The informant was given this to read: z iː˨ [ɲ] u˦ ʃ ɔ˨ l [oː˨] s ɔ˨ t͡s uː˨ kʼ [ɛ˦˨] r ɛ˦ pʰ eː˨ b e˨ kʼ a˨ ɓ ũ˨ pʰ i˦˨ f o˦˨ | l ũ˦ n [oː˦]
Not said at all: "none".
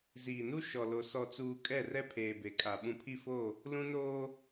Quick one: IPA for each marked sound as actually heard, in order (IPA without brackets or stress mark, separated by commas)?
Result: n, o˨, ɛ˦˨, oː˦